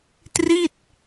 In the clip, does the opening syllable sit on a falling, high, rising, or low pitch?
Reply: falling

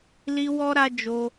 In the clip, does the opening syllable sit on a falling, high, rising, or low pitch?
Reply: high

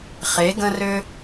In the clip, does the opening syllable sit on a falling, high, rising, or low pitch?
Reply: rising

